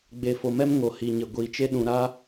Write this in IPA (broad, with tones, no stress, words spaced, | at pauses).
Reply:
ɡ͡be˨fo˨mɛ˦m ŋo˨hi˨ɲɪ˨ ɡʷi˨t͡ʃe˦ ɗũ˨ ɾa˦